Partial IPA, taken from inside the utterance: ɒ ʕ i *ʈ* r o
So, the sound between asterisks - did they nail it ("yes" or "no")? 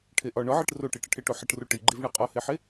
yes